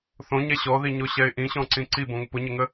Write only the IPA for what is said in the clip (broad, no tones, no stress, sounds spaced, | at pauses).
θ õ ɲ ɛ ɕ ɔ ð i ɲ o ɕ ɛ ɪ̯ ʔ ĩ ɕ ɔ̃ ǀ ĩ ǀ i b õ ŋ ʊ p ʊ ɲ ə ŋ ə